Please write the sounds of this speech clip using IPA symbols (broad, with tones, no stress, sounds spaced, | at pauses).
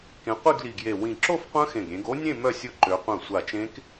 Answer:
k ẽ˨˦ qʷ i˥˧ ɡ l i˧˩ ɡ j e˧˩ w ĩ˧˩ ǁ o˥˧ f qʷ œ̃˦˥ x ẽ˧˩ ɡ ɾʲ ẽ˨˦ ɡ o˦˥ nʲ ẽ˥˧ m œ˥˧ sʲ ʊ˦˥ ǃ ø˨˦ qʷ œ̃˧˩ sʷ a˧˩ t͡ʃ ẽ˦˥ k